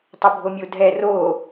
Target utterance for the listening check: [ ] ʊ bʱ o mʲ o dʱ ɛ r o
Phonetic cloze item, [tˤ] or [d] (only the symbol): tˤ